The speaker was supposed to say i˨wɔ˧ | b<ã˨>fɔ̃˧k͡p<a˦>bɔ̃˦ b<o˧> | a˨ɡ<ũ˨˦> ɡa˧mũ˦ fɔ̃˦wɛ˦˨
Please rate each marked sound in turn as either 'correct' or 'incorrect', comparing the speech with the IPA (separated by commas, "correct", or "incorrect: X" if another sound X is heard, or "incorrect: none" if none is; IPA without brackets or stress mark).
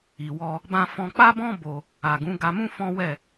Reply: incorrect: ã˧, correct, correct, correct